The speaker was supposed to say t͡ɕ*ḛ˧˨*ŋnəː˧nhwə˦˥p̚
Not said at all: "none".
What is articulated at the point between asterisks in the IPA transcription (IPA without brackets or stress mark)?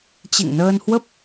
ḛ˧˨